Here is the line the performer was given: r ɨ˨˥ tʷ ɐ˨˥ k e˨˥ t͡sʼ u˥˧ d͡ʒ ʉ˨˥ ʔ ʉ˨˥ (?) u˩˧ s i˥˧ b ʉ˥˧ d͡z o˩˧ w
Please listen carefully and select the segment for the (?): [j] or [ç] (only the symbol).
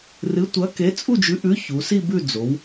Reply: ç